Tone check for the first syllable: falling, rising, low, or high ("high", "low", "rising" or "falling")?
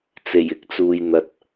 low